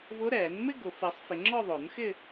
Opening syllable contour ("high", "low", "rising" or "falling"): rising